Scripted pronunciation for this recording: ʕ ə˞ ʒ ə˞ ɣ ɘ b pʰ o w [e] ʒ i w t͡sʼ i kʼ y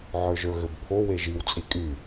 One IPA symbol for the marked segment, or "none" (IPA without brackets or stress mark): e